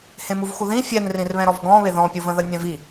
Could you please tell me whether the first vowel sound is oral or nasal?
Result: nasal